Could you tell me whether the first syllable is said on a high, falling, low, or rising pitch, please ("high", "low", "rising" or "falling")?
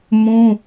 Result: high